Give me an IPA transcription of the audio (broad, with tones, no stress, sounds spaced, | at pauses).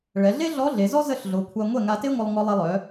ɭ ɛ˩˧ ɮ e˥ ɮ ɔ˧˥ ɮ e˩˧ z ɔ˥ z ə˥˩ ɬ ɮ o˩˧ kʷʰ a˧ ŋʷ ɛ˥˩ ŋ a˧ t e˥ ŋʷ ə˧ lˠ ŋ ɔ˧ lˠ ɛ˧ lˠ œ˩˧